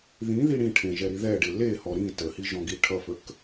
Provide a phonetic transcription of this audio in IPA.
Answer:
ð ĩ ð i ɽ ĩ ʈʰ ẽ ʒ ɛ ɾ i ð ɛ ɖ e l e h ɔ ɾ ĩ t ə h i ʒ ɔ̃ ɡ i ʈʰ ʌ f ə k

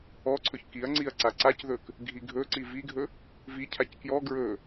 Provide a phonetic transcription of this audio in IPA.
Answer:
ɔ ǀʰ ɵ ç k i ɐ̯ ŋ͡ǀ i ɐ̯ ǀ a ǀ a c ð ɵ k | ɡʱ i ɡʱ ɵ ǀ i v i ɡʱ ɵ | v i cʰ a c k j ɔ ɡ ɹ ɵ

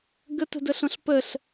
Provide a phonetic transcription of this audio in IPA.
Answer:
ɡ ə t ə̤ d ə ɬ õ ɬ p ə ɬ

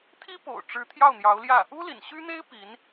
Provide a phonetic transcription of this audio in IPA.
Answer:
t̪ʰ i˥ p o̰˨˩ ʊ̯ ʈ͡ʂ ɻ̩˧˥ t̪ʰ j ɑ˥˩ ʊ̯ n̪ j ɑ˧˥ ʊ̯ l j ä˥˩ | u˥ l ḭ˨˩ n ɕ y˥ n̪ e˥ ɪ̯ p i˧˥ n

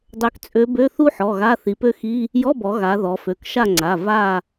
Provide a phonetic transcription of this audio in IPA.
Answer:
dˤ ø˧˥ k t͡sʼ ø˧˥ b ø˧˥˧ θ u˥ ħ ɔ˩˧˩ ɣ a˧˥˧ θ i˩˧ p ø˥ x i˧˥˧ | j ɔ˧˥˧ b ɔ˩˧ ɣ a˩˧ ð ɔ˩˧ f ø˩˧˩ k ʃ a˦˨ ŋ͡ǀ a˩˧˩ v a˦˨

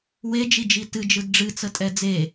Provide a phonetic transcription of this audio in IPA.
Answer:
w e d͡ʒ i d͡ʒ i t ɨ d͡ʒ ɯ d ɖ͡ʐ ɨ t͡s ə tʼ ɛ d͡z e

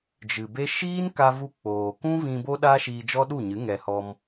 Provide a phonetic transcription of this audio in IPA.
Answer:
d͡ʒ ɨ˨ b e˦ ʃ iː˦ n k a˧ v u˧ k͡p oː˨ k ũ˦ v ĩ˧ b o˦ ɗ a˦ ʃ iː˧ d͡ʒ ɔ˦ ɗ u˦˨ ɲ ɨ˨˦ ŋ ɛ˧ h ɔ˧ m

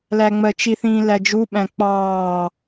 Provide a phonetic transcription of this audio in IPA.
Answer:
l æ ŋ͡m ɜ t͡ʃ i θ ĩː l æ d͡ʒ u ɓ æ̃ k͡p ɑː

